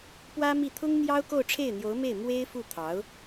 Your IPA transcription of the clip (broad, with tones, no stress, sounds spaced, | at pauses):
p w ä˥ m i˥˩ t̪ʰ ʊ˥ ŋ n̪ j ɑ˥ ʊ̯ k o˥˧ ʊ̯ ʈ͡ʂʰ e˥˩ ɪ̯ n̪ j o˧˥ ʊ̯ m e˥˩ ɪ̯ m w e˥ ɪ̯ f u˥˩ t̪ʰ ɑ˧˥ ʊ̯